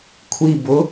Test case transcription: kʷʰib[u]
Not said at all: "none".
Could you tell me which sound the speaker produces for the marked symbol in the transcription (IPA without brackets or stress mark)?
ʊ